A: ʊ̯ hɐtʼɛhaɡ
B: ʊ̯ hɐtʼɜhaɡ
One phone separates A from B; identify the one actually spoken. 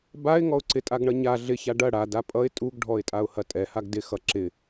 A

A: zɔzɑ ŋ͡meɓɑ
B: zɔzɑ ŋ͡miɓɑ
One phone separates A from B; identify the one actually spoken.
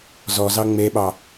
A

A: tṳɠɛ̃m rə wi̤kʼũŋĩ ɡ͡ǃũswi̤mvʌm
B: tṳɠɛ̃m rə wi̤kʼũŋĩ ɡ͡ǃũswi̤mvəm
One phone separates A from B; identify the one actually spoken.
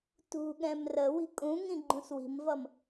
A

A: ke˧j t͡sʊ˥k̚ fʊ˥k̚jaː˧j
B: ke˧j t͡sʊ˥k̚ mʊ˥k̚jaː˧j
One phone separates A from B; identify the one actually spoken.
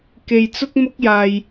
B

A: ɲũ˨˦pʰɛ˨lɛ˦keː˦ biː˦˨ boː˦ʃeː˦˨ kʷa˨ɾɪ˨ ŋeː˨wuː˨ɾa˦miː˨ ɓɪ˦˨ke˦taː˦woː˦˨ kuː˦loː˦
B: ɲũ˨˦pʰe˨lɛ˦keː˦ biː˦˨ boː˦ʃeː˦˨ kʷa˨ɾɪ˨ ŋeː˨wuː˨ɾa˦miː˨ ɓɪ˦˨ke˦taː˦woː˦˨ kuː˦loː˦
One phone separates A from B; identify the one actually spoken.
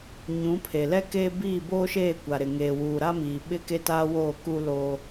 B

